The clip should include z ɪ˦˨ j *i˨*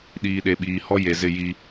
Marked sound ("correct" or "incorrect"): incorrect